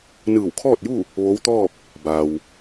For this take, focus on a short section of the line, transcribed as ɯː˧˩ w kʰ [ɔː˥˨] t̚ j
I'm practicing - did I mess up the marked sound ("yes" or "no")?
no